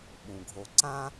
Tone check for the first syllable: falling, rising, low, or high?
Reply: low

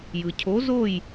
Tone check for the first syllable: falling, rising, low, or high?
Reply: low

